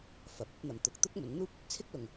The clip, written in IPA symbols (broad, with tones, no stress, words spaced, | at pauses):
fɐ˨˥p̚ ɐ˨˥p̚n̪ɐ˨m t̪ʊ˨˥k̚t̪ʊ˥k̚ mɵ˨˥nn̪uː˥p̚ | t͡sʰɪ˥k̚lʊ˨ŋ